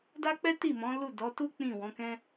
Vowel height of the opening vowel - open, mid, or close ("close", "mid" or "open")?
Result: open